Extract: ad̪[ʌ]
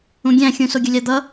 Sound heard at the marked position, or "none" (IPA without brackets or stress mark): ʌ